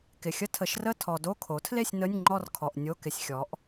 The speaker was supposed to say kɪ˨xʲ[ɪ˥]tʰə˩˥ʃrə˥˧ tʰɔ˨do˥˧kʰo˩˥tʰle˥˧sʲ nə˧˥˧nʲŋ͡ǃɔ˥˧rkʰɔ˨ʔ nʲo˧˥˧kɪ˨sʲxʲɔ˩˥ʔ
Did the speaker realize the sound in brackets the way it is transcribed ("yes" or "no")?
no